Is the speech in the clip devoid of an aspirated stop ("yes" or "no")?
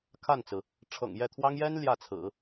no